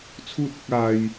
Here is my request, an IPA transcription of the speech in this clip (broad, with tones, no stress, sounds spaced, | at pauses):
t͡sʰ uː˥ t̚ ɪ˥ k̚ aː˥ j